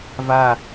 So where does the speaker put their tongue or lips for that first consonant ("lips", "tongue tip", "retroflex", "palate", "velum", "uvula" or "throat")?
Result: lips